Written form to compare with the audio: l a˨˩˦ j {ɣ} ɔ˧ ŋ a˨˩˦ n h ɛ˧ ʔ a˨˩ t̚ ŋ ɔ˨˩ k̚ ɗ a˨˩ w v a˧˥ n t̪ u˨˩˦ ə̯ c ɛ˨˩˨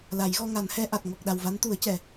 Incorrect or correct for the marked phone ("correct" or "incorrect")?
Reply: correct